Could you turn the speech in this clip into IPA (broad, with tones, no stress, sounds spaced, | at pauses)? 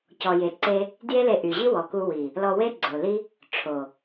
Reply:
c ɔ˨ j e˨ ǀ e˧ | d j e˦ l e˧ ʔ y˨ ʑ i˦ w ɔ˨ k u˧ w i˨ | l ɔ˧ w e˦ ɡ͡ǀ o˨ l i˦ | ʈ͡ʂʰ o˨